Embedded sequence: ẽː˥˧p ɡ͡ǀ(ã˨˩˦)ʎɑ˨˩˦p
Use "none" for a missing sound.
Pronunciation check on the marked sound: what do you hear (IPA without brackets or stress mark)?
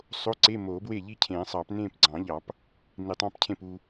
ɑ̃˨˩˦